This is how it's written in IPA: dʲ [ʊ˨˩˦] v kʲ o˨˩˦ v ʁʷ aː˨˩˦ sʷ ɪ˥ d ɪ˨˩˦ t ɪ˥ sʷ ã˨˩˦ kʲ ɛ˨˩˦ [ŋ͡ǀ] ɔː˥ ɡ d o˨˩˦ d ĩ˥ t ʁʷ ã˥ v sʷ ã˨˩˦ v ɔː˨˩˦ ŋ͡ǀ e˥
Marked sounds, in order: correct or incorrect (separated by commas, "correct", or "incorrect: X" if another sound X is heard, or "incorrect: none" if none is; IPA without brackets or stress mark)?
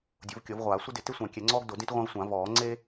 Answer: correct, correct